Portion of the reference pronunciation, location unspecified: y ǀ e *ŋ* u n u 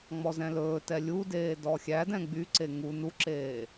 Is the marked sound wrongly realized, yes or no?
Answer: no